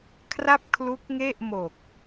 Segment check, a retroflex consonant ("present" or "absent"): absent